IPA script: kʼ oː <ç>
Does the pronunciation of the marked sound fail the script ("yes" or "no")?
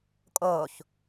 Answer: no